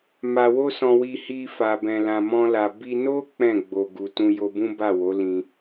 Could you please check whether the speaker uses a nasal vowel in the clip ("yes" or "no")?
yes